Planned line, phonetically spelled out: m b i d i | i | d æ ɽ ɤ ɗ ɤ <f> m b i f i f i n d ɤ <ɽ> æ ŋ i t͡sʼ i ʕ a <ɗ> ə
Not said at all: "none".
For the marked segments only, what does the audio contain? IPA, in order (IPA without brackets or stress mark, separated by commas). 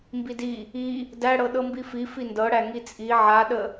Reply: none, ɽ, ɗ